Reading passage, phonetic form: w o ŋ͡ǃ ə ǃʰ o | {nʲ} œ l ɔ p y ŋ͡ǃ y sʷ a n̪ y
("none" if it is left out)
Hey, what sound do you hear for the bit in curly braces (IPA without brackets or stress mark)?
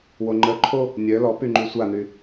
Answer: nʲ